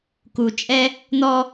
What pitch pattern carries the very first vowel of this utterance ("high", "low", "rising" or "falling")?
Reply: low